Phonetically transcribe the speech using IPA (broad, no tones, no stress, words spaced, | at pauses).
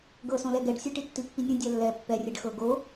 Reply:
ɡɤsõ lɛɡɛɖsʲɯ ʈitːipːinʲõ dʲalːɛ pːɛrʲɛɖ xɤ ɡo